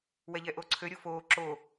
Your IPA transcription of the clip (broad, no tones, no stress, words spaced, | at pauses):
wɛʎɛʔoǀʰø ɾʲofoː ǁo